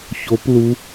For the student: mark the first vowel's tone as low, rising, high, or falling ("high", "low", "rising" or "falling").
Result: rising